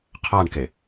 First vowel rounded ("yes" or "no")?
no